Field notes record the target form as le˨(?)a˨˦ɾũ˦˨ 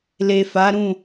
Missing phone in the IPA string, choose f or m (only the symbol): f